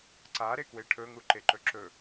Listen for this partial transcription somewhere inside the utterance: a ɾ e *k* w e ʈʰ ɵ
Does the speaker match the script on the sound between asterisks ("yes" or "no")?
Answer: yes